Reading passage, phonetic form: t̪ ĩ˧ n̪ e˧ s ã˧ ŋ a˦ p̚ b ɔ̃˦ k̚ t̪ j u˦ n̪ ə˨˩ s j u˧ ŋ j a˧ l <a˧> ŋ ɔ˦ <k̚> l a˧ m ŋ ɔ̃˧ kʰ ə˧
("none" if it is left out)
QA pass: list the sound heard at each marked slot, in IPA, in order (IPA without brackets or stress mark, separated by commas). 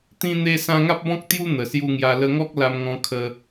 ə˧, k̚